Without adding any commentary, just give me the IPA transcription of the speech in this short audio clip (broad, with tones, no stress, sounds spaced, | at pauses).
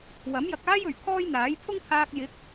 w ɐ˨˥ m j ɐ˨ k̚ aː˥ j ɵ˨˩ ɥ kʰ ɔː˥ j n̪ aː˨˥ j pʰ ʊ˥ ŋ t̪ʰ aː˧ k̚ j ɪ˨˥ k̚